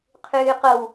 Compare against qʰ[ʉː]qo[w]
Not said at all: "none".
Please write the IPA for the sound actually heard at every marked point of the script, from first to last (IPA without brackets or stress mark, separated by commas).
ʉː, w